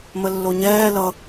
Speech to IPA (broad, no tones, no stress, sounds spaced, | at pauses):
m ə lː o ɲ ɛː l ʌ